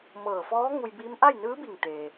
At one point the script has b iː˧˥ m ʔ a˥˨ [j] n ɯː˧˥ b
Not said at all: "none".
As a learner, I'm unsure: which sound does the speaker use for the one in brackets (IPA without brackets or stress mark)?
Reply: j